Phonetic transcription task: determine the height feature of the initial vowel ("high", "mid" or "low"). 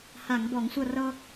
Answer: low